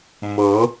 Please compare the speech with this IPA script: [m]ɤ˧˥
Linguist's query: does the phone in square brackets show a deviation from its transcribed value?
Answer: no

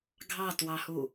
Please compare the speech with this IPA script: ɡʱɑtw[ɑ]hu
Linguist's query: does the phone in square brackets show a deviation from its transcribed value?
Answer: no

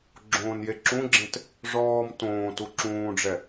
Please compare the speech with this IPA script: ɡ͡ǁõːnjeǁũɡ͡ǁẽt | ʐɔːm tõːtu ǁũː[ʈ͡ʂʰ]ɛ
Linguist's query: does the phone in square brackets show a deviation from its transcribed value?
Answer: yes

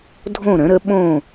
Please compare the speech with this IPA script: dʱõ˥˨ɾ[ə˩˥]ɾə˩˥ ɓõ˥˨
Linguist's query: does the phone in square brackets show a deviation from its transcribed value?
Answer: yes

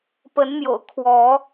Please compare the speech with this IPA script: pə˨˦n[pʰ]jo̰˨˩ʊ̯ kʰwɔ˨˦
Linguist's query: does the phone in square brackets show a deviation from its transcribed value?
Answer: yes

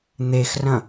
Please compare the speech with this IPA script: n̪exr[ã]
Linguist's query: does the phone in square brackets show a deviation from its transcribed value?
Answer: yes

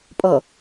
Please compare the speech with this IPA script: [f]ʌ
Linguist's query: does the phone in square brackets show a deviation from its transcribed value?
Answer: yes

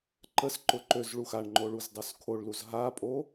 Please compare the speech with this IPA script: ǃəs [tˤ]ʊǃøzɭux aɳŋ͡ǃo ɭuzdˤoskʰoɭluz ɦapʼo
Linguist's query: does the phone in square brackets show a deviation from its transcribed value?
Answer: yes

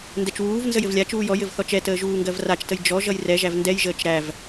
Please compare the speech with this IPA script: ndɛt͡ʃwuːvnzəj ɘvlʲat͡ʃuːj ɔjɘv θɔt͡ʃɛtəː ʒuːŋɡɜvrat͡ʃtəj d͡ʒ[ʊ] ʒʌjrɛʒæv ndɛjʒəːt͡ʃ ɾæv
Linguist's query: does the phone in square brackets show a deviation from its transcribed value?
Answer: yes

